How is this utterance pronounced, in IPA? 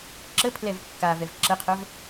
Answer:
ǁ ə pʰ l ɛ v kː a v ɛ v ǁ ə qʰ œ v

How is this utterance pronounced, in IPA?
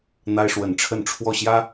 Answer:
n̪ a˦ ɪ̯ ʂ w ə˨˦ n ʈ͡ʂʰ ə˥˨ n ʈ͡ʂʰ w ɔ˥˨ ɕ j ä˦

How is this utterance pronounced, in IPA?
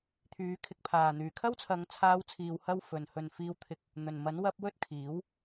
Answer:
t̪ʰ yː˨˧ kʰ ɪ˧ k̚ pʰ aː˨˩ n̪ yː˨˩ kʰ ɐ˥ w t͡sʰ ɐ˨˧ ŋ t͡sʰ aː˧ w t͡sʰ iː˨ w h ɐ˥ w f ɵ˨ n h ɵ˨ n f iː˧ w t̪ʰ ɪ˧ k̚ | n̪ ɵ˨˩ n m ɐ˨˥ n w ɐ˧ p̚ w ɵ˥ t̚ kʰ iː˨˥ w

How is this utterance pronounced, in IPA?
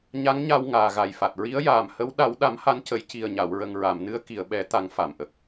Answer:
ɲ a˧˥ ŋ ɲ a˧ w ŋ aː˨˩ ɣ a˨˩ j f a˨˩ t̚ ɹ i˧˥ ə̯ j aː˨˩ m h ə˧˥ w ɗ a˨˩˦ w ɗ a˨˩˦ m h a˧˥ n c ə˨˩˦ j c i˨˩ ə̯ ɲ a˨˩˨ w ɹ ə˨˩ ŋ ɹ a˨˩˨ m n ɨ˧ ə̯ k i˨˩˨ ə̯ ɓ ɛ˨˩˦ t̪ a˨˩˦ ŋ f a˨˩˨ m ʔ ə˨˩ k̚

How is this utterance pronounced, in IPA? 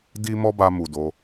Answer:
d i˦ m ɔ˦ b a˧ m u˨ d o˨˦

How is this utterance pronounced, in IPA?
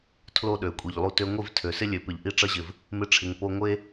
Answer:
tʰ l o˦ ɗ ø˨ kʷʼ i˨ ʎ lˠ u˧ t ø˧ ŋʷ i˦˨ v tʰ ø˨ s ɪ˦ lʲ ø˨ p ɪ˨ ʎ ʔ i˧ ʈ͡ʂ ʌ˧ ʑ ɪ˨ v | m ɪ˧ ʈ͡ʂʰ ɪ˨ ŋ p o˧ ŋʷ e˦

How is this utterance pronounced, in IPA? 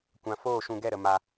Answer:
kʷ ã˨ f oː˦˨ ʃ ũ˧ ɡ ɛ˦˨ ɾ ə˨ m a˧

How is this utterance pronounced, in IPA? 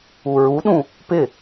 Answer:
u ɹ u ɗ ũ | p ɪ

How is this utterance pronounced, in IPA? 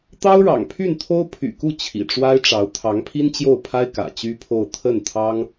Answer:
t̪ ɑ˥ ʊ̯ ɻ ɑ̰˨˩ ŋ pʰ y˥˩ n t̪ʰ o˥ ʊ̯ pʰ y̰˨˩ k u˥˩ t͡ɕʰ ḭ˨˩ ʈ͡ʂ w a˥ ɪ̯ ʈ͡ʂ ɑ˧˥ ʊ̯ t̪ʰ ɑ˧˥ ŋ pʰ i˥ n t͡ɕ j o˥˩ ʊ̯ pʰ a˥ ɪ̯ k ä̰˨˩ t͡ɕ y˥ pʰ o˥˧ ʊ̯ t̪ʰ ə˥˩ n t̪ʰ ɑ˥ ŋ

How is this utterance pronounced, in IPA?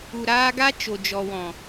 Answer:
u˨ ɾ aː˧ ɡ a˦ t͡ʃ o˨ d͡ʒ ɔ˨ w ɔ̃˨

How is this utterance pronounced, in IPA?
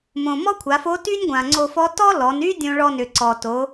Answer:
m õ˩ m ɔ˥ kʷʰ a˩˧ f o˧˥ t y˥ nʲ ɡʷ ã˩ ŋ͡ǀ o˧ f ɔ˧˥ t ɔ˥ l ɔ˩˧ n y˥ dʲ õ˧ ɭ ɔ˧ n ʏ˩ ǀ ɔ˩ t o˩˧

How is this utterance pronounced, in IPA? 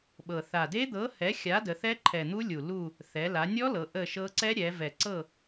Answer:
ɓ ɤ˨˩ θ a˨˩ d e˦˥ d̪ ɤ˨˥ h ɛ˨˥ xʲ a˨˥ d ə˩˧ θ ɛ˦˥ ǃʰ ɛ˨˩ n̪ u˦˥ lʲ u˨˩ l u˦˨ | θ ɛ˩˧ l a˩˧ nʲ ɔ˦˥ l ɤ˩˧ ʔ ə˦˨ ʃ ɤ˦˥ ǀ ɛ˦˥ ɾʲ ɛ˩˧ v ɛ˨˩ ǀ ɤ˦˨

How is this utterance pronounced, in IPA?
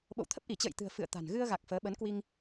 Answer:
ɓ o̰˧˨ w t̪ʰ ə˦˥ p̚ ʔ i˧˩ t͡ɕ ə̰ː˧˨ j t̪ ɨ̤˨˩ ə̯ f ɨ̰˧˨ ə̯ t̪ a̤˨˩ n ɣ ɨ˧ ə̯ ɣ a˨˩ k̚ f əː˨˦ ɓ ə˨˦ n k w i˧ ŋ

